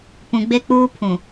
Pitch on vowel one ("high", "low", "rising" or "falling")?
low